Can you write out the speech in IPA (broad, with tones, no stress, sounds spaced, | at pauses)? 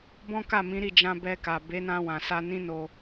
b ɔ̃˦ k a˦˨ m ĩ˨˦ ɾ i˦˨ d͡ʒ ã˧ b ɛ˧ k a˨ b e˨˦ n ã˧ w ã˨ s a˧ n ĩ˦ n o˧